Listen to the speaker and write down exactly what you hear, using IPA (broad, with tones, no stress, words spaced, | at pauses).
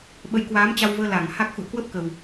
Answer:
ɓə˨˦jkwaː˨˦mt͡ɕa˧wvəː˧ la˧˩ŋha˦˥k̚ xṵ˧˨ə̯kwə˦˥p̚kə˨˩w